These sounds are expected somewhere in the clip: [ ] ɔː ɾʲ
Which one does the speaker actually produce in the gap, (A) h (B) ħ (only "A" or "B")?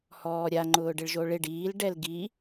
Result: A